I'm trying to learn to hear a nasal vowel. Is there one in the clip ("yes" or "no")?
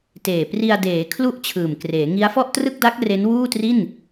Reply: no